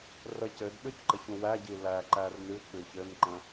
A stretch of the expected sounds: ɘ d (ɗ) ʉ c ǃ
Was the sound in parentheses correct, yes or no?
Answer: yes